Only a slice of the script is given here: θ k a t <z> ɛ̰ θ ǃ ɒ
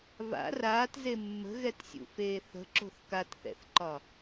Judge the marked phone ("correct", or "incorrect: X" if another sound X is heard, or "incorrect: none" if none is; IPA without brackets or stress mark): incorrect: θ